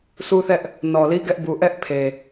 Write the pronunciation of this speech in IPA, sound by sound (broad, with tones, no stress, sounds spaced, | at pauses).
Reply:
sʰ u˦ θ ɛ˦ ʔ | n ɔ˨ l i˦ ɡ ɛ˦ ʔ b u˨ ʔ ɛ˦ ʔ pʰ e˨